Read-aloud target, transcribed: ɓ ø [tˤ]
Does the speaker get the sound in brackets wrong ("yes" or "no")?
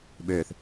yes